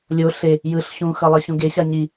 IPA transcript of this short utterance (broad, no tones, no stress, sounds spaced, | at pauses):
lʲ o ɬ e | j ɯ ɬ ɕ ũ x ʌ lˠ ʌ ɕ ũ ɡ e ɕ a ɲ i